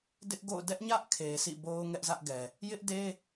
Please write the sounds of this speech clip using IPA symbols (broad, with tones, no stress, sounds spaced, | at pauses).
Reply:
d ɪ˦ ʔ ɡ o̰˦˨ ʊ̯ d ɛ˦ ʔ ɲ ä˦ ʔ kʰ e˨ sʰ ḭ˦˨ b o˦ ʊ̯ ŋ ɛ˦ ʔ z ä˦ ʔ ɡ ɛ˨ | j ɪ˦ ʔ d e˦